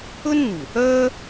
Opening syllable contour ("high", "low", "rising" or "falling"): high